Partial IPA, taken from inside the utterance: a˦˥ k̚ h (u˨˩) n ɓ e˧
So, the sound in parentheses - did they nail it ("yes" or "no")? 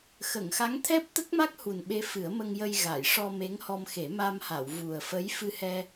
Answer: yes